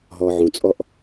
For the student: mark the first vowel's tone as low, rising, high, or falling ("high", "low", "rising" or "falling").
low